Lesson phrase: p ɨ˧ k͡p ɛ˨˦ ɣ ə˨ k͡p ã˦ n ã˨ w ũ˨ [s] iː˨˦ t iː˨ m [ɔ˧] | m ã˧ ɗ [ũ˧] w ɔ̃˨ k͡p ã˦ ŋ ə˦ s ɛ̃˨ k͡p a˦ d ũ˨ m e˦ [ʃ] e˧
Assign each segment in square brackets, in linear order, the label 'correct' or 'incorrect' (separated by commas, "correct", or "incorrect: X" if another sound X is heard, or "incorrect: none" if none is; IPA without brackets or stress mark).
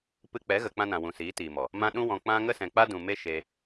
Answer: correct, incorrect: ɔ˨, correct, correct